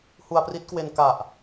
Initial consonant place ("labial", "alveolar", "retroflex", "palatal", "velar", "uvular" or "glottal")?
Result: glottal